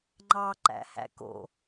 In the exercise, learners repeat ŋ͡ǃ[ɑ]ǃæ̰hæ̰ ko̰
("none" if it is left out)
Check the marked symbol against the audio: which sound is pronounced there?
ɑ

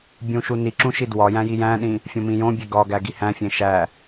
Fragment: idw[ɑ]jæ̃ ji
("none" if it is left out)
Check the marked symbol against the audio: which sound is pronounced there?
ɒ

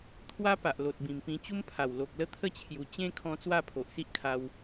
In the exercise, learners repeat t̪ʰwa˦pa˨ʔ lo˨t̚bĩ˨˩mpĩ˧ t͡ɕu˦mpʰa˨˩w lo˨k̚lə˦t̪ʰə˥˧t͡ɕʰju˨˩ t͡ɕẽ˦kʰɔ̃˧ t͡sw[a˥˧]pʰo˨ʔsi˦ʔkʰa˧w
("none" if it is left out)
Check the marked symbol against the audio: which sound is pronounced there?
a˥˧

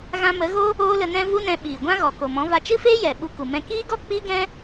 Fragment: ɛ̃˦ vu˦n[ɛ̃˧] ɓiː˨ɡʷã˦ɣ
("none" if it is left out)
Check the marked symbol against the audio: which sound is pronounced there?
ɛ̃˧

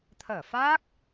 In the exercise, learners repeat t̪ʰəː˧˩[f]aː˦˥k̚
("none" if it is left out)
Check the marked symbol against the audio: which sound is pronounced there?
f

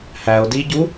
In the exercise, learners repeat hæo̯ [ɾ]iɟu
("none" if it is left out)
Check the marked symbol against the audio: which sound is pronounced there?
d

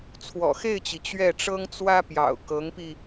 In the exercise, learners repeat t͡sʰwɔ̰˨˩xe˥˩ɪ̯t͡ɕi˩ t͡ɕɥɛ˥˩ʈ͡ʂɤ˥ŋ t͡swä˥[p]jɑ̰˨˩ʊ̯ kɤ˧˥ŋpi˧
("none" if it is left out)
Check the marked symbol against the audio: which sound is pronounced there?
p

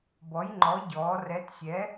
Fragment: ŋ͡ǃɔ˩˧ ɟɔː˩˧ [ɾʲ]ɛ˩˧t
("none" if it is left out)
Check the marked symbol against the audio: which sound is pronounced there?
r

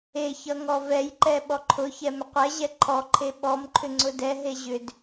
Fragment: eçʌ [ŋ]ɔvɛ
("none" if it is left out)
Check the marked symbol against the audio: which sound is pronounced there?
ŋ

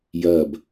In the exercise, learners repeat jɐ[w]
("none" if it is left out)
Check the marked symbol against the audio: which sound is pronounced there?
b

